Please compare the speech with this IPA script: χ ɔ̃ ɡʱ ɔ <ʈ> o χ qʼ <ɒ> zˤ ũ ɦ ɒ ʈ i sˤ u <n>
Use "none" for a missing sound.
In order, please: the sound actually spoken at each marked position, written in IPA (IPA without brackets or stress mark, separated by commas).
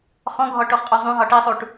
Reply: ʈ, ɒ, ʈ